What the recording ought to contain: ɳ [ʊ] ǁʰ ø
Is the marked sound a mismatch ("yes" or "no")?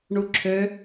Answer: yes